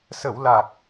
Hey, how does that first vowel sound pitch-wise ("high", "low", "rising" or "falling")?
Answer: low